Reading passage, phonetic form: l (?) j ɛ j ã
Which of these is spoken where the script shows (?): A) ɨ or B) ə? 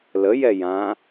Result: B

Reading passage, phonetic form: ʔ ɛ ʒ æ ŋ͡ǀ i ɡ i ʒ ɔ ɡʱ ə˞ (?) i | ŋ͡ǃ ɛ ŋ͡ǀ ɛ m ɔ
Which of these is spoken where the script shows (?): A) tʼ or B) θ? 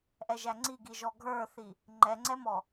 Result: B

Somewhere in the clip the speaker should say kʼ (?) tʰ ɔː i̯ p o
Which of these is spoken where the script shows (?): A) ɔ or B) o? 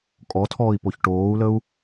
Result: A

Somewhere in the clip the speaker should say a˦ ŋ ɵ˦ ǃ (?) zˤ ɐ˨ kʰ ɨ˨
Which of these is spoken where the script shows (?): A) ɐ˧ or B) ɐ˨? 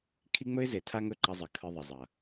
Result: A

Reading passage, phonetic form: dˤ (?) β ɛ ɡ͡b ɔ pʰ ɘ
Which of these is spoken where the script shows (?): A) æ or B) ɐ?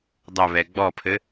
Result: B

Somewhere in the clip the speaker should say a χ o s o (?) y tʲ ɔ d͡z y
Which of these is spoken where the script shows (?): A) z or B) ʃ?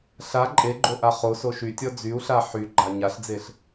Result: B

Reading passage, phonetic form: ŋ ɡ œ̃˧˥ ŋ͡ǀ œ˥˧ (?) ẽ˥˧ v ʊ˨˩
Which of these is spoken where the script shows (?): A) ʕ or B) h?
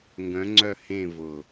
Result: B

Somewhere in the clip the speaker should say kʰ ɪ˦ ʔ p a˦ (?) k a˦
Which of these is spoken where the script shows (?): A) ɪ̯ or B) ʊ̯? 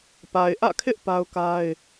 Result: B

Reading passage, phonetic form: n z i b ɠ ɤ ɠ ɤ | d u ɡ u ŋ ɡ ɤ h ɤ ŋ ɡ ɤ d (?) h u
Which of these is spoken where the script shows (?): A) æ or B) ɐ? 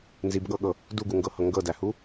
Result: A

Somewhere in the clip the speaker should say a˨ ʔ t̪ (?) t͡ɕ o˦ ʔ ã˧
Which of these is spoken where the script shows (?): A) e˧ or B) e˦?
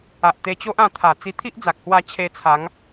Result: A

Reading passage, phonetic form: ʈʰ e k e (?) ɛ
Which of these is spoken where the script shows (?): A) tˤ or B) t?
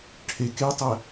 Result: A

